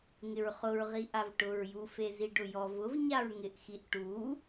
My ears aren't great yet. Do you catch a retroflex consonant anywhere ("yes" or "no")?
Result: yes